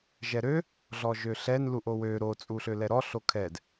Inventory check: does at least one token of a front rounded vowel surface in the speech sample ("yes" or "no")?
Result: yes